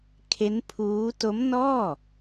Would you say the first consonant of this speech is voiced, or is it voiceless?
voiceless